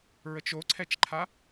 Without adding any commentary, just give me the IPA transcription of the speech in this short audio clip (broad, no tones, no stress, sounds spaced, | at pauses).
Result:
ɹ ə t͡ʃ o ǀʰ ɛ t͡ʃ ǃʰ a